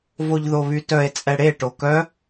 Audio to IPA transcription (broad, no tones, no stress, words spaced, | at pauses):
voʎðoβytœe̯ t͡sʼɛɽe ʈokœ